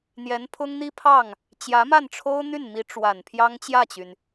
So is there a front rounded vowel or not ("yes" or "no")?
yes